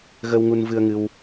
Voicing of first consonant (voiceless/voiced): voiced